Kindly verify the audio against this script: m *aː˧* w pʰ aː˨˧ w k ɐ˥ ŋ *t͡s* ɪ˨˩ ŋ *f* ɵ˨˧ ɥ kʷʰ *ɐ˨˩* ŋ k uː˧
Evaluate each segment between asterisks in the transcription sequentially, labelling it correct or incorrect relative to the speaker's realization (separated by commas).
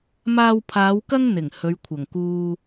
correct, incorrect, incorrect, correct